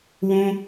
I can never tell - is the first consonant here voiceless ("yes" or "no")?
no